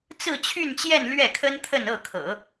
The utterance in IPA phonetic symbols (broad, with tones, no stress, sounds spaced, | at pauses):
t͡s ɹ̩˥˧ t͡ɕʰ y˥˧ n t͡ɕ j ɛ˥˧ n l ɥ ɛ˥˩ kʰ ə˥ n t̪ʰ ə˥˧ n ɤ˥˩ kʰ ɤ̰˨˩˦